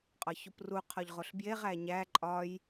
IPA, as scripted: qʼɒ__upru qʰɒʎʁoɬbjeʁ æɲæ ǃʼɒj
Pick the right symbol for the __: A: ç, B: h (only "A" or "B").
A